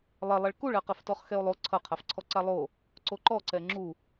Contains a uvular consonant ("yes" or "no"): yes